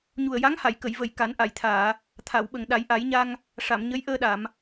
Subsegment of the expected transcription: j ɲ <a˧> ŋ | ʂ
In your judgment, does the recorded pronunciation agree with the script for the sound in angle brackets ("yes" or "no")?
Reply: yes